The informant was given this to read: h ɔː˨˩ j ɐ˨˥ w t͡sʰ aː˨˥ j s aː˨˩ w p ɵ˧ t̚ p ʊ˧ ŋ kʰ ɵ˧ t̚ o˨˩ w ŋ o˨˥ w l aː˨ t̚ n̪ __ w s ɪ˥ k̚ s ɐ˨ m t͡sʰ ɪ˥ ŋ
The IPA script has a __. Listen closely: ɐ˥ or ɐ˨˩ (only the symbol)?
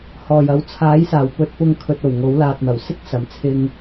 ɐ˨˩